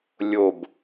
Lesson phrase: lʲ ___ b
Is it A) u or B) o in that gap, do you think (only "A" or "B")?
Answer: B